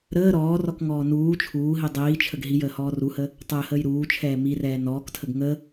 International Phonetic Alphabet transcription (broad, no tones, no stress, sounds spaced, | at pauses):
ɾ əː ɾ ɔː r ɔ k ŋ ɔː n uː t͡ʃʰ uː ɦ i dˤ iː t͡ʃʰ ə ɡ ɦ i j əː h ɔː r u h ə | tˤ əː h əː j ɾ uː t͡ʃʰ ɛː m i r ɛː n ɔː k tʰ ə ɡ ŋ ə